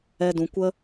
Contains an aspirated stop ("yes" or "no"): no